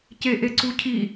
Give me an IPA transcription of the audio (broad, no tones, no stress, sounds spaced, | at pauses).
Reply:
c e ʔ e ǀ u cʰ i